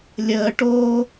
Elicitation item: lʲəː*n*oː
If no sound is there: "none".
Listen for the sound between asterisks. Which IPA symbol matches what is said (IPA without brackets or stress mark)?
ʈ